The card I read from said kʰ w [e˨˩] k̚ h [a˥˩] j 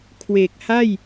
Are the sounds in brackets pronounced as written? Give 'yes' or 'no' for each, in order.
yes, yes

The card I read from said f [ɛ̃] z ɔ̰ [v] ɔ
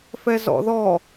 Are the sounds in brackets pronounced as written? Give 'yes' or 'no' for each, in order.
no, no

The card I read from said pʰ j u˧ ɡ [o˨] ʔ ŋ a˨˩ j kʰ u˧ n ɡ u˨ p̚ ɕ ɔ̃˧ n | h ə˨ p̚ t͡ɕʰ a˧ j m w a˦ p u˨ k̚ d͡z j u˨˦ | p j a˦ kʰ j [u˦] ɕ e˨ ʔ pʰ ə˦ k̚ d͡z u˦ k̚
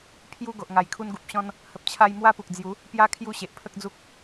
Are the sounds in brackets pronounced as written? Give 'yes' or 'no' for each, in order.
yes, yes

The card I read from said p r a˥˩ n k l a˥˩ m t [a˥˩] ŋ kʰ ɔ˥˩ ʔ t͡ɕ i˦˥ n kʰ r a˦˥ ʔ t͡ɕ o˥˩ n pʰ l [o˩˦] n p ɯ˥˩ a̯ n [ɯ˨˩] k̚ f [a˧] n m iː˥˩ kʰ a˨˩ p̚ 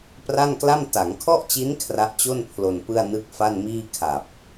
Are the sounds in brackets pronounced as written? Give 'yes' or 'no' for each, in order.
no, no, no, no

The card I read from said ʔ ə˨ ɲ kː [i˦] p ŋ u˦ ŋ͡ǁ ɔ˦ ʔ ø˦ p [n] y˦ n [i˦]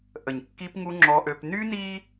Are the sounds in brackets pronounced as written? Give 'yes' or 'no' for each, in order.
yes, yes, yes

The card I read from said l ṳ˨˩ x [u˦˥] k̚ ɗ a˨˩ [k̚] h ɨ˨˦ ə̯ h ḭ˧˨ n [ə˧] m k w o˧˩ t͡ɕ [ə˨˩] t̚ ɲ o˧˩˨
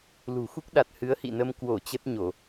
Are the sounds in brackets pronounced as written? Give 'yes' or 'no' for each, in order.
yes, no, yes, no

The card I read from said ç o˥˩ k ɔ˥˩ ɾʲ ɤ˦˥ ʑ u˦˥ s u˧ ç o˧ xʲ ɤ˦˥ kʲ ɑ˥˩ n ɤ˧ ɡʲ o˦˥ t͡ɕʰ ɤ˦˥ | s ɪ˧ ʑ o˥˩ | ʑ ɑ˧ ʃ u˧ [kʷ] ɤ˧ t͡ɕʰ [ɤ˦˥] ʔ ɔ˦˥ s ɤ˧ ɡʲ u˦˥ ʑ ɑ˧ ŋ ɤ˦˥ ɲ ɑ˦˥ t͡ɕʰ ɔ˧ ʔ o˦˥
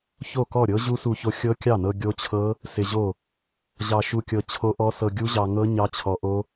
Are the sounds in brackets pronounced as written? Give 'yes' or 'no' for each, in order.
no, no

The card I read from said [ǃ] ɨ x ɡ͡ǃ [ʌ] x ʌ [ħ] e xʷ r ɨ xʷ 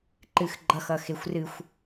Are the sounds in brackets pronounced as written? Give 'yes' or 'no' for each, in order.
yes, yes, no

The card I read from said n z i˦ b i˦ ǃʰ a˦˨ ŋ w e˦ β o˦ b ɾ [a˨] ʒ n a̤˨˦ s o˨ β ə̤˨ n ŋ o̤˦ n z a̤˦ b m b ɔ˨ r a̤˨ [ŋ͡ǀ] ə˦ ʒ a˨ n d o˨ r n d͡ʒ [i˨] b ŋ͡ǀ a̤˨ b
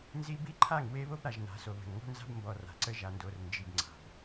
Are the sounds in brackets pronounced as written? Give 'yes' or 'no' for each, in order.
yes, no, yes

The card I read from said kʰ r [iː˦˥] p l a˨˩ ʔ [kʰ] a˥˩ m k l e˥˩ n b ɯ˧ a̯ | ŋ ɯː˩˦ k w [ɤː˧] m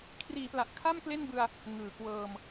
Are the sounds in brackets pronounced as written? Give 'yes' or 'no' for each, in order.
no, yes, yes

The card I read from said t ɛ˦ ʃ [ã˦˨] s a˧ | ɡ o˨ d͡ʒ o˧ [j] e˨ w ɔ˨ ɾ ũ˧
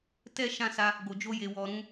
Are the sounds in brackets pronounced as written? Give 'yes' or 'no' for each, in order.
yes, yes

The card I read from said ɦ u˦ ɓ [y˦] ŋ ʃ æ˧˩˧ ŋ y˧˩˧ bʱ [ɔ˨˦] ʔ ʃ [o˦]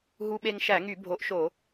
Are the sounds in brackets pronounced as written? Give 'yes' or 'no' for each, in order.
no, no, no

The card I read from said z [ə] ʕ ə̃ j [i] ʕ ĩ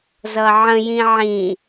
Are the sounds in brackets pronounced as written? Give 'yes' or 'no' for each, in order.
no, no

